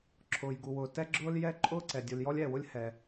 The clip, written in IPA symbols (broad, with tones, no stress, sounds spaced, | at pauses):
ǁʰ ʊː˩ j ɡ u˩ w ʊː˩ t ɛ˥ ɡ͡ǁ ʊː˥ l j ɛ˥ ǃʼ ʊː˥ ǀ ɛ˩ dʲ u˩ l j ɔ˥ lʲ ɛː˩ w ʊ˥ lʲ h ɛ˩